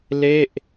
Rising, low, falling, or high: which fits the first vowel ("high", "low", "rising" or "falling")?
falling